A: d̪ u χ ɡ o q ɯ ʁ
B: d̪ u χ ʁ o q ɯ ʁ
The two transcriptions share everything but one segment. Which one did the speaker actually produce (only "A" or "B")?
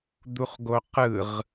A